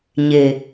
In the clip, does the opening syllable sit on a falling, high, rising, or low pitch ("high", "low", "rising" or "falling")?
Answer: low